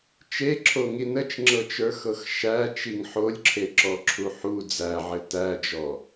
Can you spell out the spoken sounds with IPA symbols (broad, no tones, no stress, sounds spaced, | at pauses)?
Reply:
t͡ʃ e ǁʰ o ŋ i n ə t͡ʃ ŋ͡ǁ ɤ t͡ʃ ə˞ x ɤ x ʃ æ t͡ʃ i ŋ ħ o lʲ ǁʰ e ǁ ɔ ǁʰ u ħ u d͡z æ ʕ ɘ t æ d͡ʒ ɔ